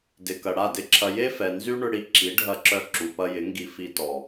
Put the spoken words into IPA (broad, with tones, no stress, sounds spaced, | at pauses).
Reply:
d ɪ˨ k ɐ˨ ɽ a˦˨ d ɪ˦ ǁʰ ɐ˧ j e˦ f ɛ˨ n z y˦ ɳ ʏ˧ ɽ i˧ ǁ i˨˦ ɖʱ ɐ˧ ǁ œ˧ ǁ u˨ p ɐ˧ j ɪ˨˦ ŋ ɡ i˧ f i˧ t ɔ˨